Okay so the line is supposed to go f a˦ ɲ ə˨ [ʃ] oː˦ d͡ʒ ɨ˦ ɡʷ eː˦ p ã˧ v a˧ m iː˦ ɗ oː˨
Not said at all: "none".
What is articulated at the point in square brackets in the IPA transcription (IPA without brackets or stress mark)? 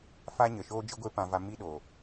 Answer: ʃ